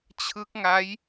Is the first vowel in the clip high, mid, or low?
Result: high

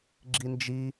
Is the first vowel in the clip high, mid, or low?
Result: high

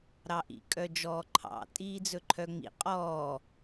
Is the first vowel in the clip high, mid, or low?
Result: low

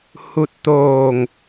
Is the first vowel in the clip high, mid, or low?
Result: high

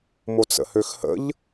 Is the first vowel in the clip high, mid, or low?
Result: mid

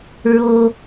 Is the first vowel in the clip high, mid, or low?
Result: mid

